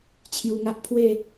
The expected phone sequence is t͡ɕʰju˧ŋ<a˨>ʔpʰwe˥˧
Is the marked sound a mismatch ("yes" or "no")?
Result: yes